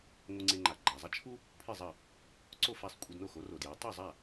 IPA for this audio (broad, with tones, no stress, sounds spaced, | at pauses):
ŋʷ ɨ˧ ŋ͡ǀ e˧ ŋ͡ǃ a˩ ɡ͡ǃ a˩ zˤ ɐ˥ t͡ʃʰ u˥ | pʰ ɨ˥˩ zˤ ɐ˥˩ | ǀ o˥˩ f a˥˩ sˤ kʷʼ e˧ d n o˥˩ x o˩˥ r o˩ d j a˩˥ tˤ u˥˩ zˤ a˥˩